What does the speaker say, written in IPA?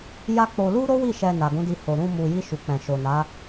j a˦ k͡p o˧ l u˦ ɾ o˦ w i˦˨ ʃ ɛ˧ n a˨ ɡ ũ˨˦ d i˧ h o˨ ɾ ũ˧ m u˨ j i˧ ʃ u˨ k͡p ɛ̃˨ ʃ o˨ n a˨˦

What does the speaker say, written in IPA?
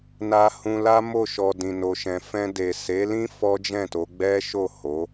n a˧ h ũ˧ l a˦ m o˦˨ ʃ ɔ˨ d ĩ˨ n o˨ ʃ ɛ̃˨ f ɛ̃˧ d e˨ s e˨˦ l ĩ˦ f ɔ˦ d͡ʒ ɛ̃˦˨ t o˨˦ ɡ͡b ɛ˦ ʃ o˦˨ h o˨˦

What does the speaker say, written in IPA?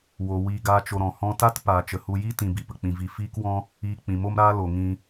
w o˨ w iː˧ ɡ aː˦ t͡ʃ o˧ ɾ ɔ̃˨ h ɔ̃˧ t a˦ t p aː˨ t͡ʃ ə˨ h u˧ j i˦ t ĩ˨ b i˨ p ə˨ k͡p ĩ˨ v i˨ f iː˦ k w ɔ̃˦ | iː˧ k͡p ĩ˨ m o˦ m ɾ aː˦ l o˨ ŋ ĩ˧

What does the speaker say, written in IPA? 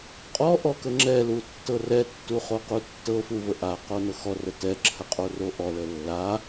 qʼ ɔ ʔ ɔ k ə ŋ͡ǁ ɛ l u tː ɤ r ɛ tː u χ o q u tː ɤ f u v ə ʔ a q o n ɤ x ɔ r ə t ɛ ǁʰ ə qʼ o r o ʔ ɔ l ə lː a

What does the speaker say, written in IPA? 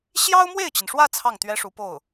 ɕ j ɑ˥ ʊ̯ m w e˥˩ ɪ̯ t͡ɕ i˩ n ʂ w ä˥˧ t͡sʰ ɑ˥˩ ŋ t̪ ɥ ɛ˥ ʂ u˧˥ p o˥˩ ʊ̯

